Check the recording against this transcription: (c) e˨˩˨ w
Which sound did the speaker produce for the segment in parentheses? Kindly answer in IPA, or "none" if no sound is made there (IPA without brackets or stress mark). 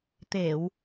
t̪